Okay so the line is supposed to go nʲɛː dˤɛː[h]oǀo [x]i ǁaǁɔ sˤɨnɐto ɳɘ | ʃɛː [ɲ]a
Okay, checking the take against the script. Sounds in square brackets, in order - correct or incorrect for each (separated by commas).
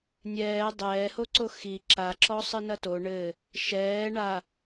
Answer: correct, correct, incorrect